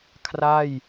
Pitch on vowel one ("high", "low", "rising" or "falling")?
falling